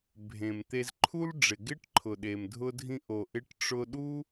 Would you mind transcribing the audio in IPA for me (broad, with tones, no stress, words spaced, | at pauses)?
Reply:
bʱẽ˩mt̪e˧zǃʰu˥l ɖ͡ʐɪ˩ɡɪ˥ʈǃʰʊ˩ ɗe˩mdʱʊ˧dʱĩ˧ ʔo˩ ʔɪ˧ʈ ʈ͡ʂʊ˧ɗu˥